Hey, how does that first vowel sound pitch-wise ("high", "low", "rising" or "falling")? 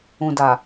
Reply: low